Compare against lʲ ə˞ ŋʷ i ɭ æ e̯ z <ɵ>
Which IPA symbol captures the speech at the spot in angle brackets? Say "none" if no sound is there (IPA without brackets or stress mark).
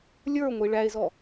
ɔ